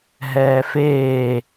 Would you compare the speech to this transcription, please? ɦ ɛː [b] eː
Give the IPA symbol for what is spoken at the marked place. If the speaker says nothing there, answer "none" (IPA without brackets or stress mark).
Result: f